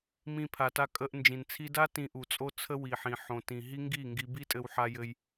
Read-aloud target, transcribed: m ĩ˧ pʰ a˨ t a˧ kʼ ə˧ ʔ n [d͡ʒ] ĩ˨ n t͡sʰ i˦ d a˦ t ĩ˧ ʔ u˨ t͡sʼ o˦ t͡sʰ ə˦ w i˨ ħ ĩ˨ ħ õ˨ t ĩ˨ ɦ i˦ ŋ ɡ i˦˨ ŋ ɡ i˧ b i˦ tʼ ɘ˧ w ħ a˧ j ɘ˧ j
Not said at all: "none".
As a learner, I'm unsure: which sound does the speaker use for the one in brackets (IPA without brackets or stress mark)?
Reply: d͡ʒ